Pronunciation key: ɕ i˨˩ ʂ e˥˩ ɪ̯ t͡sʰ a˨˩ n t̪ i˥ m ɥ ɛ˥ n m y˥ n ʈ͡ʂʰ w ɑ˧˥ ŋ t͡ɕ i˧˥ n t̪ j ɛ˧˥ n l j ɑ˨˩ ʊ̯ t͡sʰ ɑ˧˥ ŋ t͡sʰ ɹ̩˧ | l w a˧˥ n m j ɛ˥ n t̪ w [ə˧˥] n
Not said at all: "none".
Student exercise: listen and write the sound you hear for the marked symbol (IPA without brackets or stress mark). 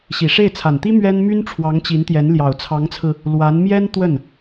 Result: ə˥˩